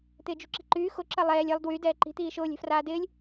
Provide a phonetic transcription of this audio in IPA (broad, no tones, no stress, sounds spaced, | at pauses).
t̪ ɪː d͡ʒ ṳ ǁ i̤ ǃ yː x ʊ ǁ ɐ lˠ ɛː lʲ ɛ lˠ d w y d ɛː ǃ i̤ t̪ iː ʃ ʊː lʲ ɛ̤ f r aː d ɪː lʲ